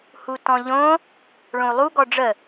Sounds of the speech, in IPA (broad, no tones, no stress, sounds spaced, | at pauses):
h u t ɔ̃ ʎ õ | ɭ õ u̯ lˠ u ɡ ɔ ɖ͡ʐ ə